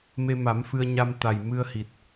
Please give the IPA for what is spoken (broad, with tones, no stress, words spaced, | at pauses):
me˧ma˨˩˦mfɨ˧ə̯ ɲa˧mt̪a˨˩jmɨ˧ə̯hi˨˩t̚